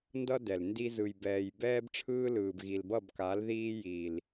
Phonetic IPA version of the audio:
n d ʌ˦ d ɛ˨ l n d i˧ z ɯ˨ j b ɛː˨ j b ɛː˦ b ʈ͡ʂʰ ɯː˦ l ɯː˨ b ɣ i˨ l b ʌ˦˨ b k a˨˦ l ð iː˦ j i˨ l

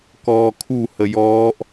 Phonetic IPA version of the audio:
k ɔː kʰ u h ə j ɔː ʔ

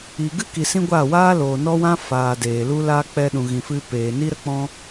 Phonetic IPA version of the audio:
i˨ ɡ ɨ˦ k i˨ s ĩ˦ ɡʷ aː˦˨ w aː˦ l oː˨ n ɔ˦ w ã˦ f aː˨ d eː˨ l u˧ l aː˧ k͡p ɛ˧ ɗ ũ˨ ɣ ĩ˨ f ɨ˧ p eː˨ n i˦ ɾ ə˦ k͡p ɔ̃˦

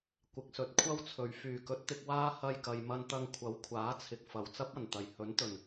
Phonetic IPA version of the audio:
kʷ ɪ˨ k̚ s ɵ˨ t̚ kʷʰ ɐ˥ w t͡sʰ ɵ˨ ɥ f yː˨˩ k ɵ˨˥ t̚ t̪ ɪ˧ k̚ w aː˥ h ɐ˧ j k ɐ˨ j m ɐ˧ n t̪ ɐ˧ ŋ kʷʰ ɐ˨˥ w kʷʰ aː˨˥ t͡sʰ ɪ˨ k̚ f ɐ˨˩ w t͡s ɐ˥ p̚ ɐ˨˩ n t̪ ɐ˨˩ j h ɵ˨˥ n t̪ ɵ˨˩ n

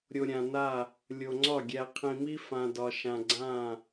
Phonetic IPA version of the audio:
ɾʲ o˨ ɾʲ ã˨ n a˦˨ | lʲ o˨ ŋ͡ǀ ɒ˦˨ ɡʲ æ˨ qʰ ĩ˨ m i˦ f ã˨ d ɒ˨ ʃ ã˨ ɡ͡ǀ ã˦˨

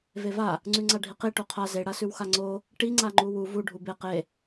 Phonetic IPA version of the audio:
v e v a | ŋ͡ǀ ʉ ŋ͡ǀ a ɖʱ i q i ʈ o qʰ a z e ɽ a s ʉ w x a ŋ͡ǀ o | ʈ i ŋ͡ǀ a ŋ͡ǃ u w u v u ɖʱ u b e q e

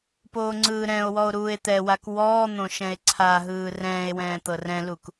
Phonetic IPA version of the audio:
p oː ŋ͡ǀ ɯː ɾ ɛ̃ o̯ w ɔ o̯ ɾ uː e̯ t̪ ɛ w a k w ɔː n̪ õ ʃ ɛ̃ e̯ ǀʰ a ɦ ɯː r ɛ̃ː e̯ w ɛ̃ː t̪ ɤ r ɛ̃ l u k

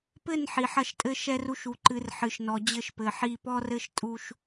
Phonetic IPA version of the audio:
p ɘ˦˨ n ħ i˨ ħ ɐ˦˨ ʃ tʼ ɘ˦ ʃ ɛ˦ r u˦ ʃ u˨ ǃ ɨ˨˦ r ħ ɨ˨ ʃ n ɔ˨ d͡ʑ ɘ˦˨ ʃ p ɘ˨ ħ i˦˨ p ɔ˦ r ɘ˦ ʃ tʼ u˦ ʃ

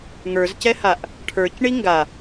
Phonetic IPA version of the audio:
ŋ ə˞ z c ɛ h a ʔ | ʈʰ ə˞ c ɳ i ŋ ɡ a

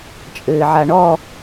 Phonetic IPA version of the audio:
t͡ʃʼ ɘː ʕ a ɳ ɔ

